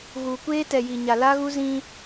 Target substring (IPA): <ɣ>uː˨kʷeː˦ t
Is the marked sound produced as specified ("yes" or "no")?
yes